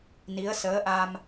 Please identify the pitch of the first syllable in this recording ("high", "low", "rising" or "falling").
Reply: rising